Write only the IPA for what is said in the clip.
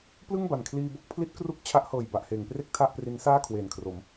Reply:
p l ɯ˥˩ ŋ b a˨˩ n kʰ l iː˧ b o˥˩ k̚ pʰ l i˦˥ t̚ k r u˦˥ k̚ t͡ɕʰ a˦˥ ʔ h ɤː˨˩ j b a˨˩ ʔ h eː˩˦ ŋ p r e˥˩ k̚ tʰ a˥˩ ʔ p r i˦˥ n s aː˥˩ kʰ w eː˨˩ n kʰ r o˩˦ m

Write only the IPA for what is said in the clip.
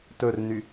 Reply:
t ɵ r n y

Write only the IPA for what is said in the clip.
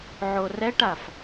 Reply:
ʕ o r ɛ ʈ a f

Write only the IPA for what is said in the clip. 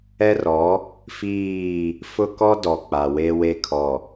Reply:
ɛ˦ r ɔ˨˦ | f iː˦˨ | f ʊ˦ k ɔ˦ d ɔ˨ k͡p a˨ w e˦ w e˦ kʰ ɔ˨

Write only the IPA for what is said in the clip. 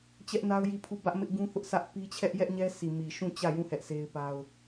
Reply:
t͡ɕ ɛ˦ ʔ n a˦ ʊ̯ j i˦˨ pʰ u˦˨ b ä˦ ʔ m ɪ˦ ʔ ɡ ũ˦ θ ʊ˦ ʔ sʰ ä˦ ʔ p i˦ t͡ɕʰ ɛ˦ ʔ j ɛ˦ ʔ ɲ ɛ˦ s i˨ m i˨ ʃ ũ˦˨ t͡ɕ ä˦˨ j ũ˦˨ h ɛ˦ ʔ sʰ e˦ ɪ̯ p a˦ ʊ̯

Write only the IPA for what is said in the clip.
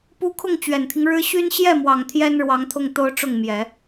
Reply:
p u˥˧ kʰ ʊ˥˩ ŋ t͡ɕ ɥ ɛ˨˩ n t̪ʰ i˦ ŋ ɻ ɻ̩˥ ɕ y˥ n ɕ j ɛ˥˩ m w ɑ˨˩ ŋ t̪ʰ j ɛ˥ n ɻ w ɑ˧˥ ŋ t̪ʰ ʊ˥˩ ŋ t̪ o˥ ʊ̯ ʈ͡ʂ ʊ˥˩ ŋ m j ɛ˨˩˦

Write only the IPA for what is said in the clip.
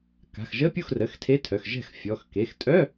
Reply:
k a̤˩˧˩ x ʒ ə˧˥˧ pʲ u˥˩ x r ə˩˧˩ x tʰ e˧˥˧ tʰ œ˩˧˩ x ʒ ɛ̤˥˩ x fʲ ɔ˩˧˩ x k e˩˧˩ x tʼ œ˧˥˧

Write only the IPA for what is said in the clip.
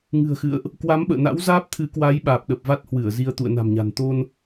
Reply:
ŋ ɨ̤˨˩ ə̯ x ɨ̰˧˨ ə̯ ʔ | k w a˨˦ m ɓ ə̰ː˧˨ n a̰˧˥ w z aː˦˥ p̚ t̪ʰ ɨ˨˦ k w aː˨˦ j ɓ aː˨˩ p̚ ɗ ə˨˩ p̚ v a˦˥ t̚ h w ɨ˧˩ ə̯ z i˧ ə̯ t̪ ṵ˧˨ ə̯ n a̤˨˩ m ɲ a̤˨˩ n t̪ o˧ n

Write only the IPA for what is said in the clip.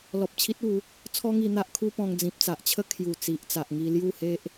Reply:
l ɔ˨ p̚ t͡ɕʰ i˦ t̚ u˨˦ | t͡sʰ ɔ˦ ŋ i˧ n̪ a˦ ʔ kʰ u˦ p ɔ̃˧ ŋ d͡z ĩ˨ p̚ t͡s a˨ ʔ t͡ɕʰ ə˦ kʰ j u˨˩ t͡s i˨ ʔ t͡s a˨ ʔ ŋ i˧ l j u˥˧ h e˦ ʔ

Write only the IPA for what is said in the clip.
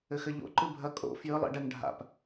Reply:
ɘ x ɘ ʎ o̰ ǃ ɨ bʱ ɐ kʼ o̰ f j ɨ lˠ ḭ ɖ ɛ ŋ ɖʱ a̰ p

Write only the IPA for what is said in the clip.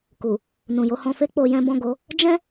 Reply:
k u˨ | n ũ˨ j o˧ h ɔ̃˧ f e˦ k͡p o˧ j ɛ̃˦ b ɔ̃˦˨ ɡ o˨˦ | d͡ʒ ɛ̃˦

